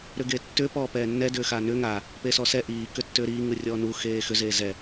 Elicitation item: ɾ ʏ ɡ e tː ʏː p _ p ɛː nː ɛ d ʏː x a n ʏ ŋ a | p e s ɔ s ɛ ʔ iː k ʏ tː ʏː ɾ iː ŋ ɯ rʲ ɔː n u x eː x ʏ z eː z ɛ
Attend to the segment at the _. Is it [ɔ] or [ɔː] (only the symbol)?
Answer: ɔː